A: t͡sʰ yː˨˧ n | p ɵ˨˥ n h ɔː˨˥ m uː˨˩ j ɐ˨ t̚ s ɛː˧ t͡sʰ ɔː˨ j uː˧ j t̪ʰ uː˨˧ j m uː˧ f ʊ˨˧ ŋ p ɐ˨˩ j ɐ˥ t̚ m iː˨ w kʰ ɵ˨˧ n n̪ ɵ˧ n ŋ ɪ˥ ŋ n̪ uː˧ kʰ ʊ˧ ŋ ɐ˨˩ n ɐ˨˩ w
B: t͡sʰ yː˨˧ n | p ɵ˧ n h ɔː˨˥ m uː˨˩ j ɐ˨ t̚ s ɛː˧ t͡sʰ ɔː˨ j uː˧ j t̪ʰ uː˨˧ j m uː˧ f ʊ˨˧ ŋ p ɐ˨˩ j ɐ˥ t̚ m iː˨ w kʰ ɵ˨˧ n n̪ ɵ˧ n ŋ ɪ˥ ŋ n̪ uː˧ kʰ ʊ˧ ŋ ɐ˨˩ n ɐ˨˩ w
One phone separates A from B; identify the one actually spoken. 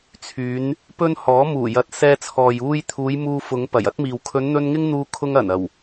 B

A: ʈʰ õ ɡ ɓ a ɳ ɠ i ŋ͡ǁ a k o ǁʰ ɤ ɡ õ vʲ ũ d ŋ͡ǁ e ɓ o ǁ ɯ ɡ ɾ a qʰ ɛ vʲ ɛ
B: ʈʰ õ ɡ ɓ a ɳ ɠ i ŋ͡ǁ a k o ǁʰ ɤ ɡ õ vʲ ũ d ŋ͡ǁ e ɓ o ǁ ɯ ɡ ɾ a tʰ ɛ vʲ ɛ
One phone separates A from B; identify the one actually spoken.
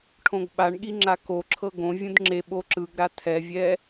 B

